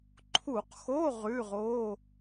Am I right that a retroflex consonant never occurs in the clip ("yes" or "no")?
yes